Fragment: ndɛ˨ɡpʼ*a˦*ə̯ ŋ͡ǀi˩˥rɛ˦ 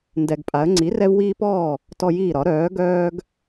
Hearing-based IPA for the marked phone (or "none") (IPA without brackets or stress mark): a˩˥